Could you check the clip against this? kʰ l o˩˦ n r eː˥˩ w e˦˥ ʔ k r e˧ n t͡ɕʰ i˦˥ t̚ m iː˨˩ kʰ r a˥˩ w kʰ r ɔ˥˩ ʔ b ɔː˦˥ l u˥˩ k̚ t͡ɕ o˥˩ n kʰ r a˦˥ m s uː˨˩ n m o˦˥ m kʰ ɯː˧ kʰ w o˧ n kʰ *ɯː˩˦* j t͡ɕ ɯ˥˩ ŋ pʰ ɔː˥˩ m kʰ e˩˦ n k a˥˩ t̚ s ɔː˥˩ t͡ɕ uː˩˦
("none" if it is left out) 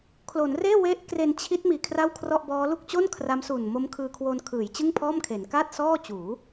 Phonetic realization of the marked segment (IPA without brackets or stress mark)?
ɯː˩˦